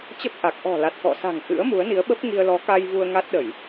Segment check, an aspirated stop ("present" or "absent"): absent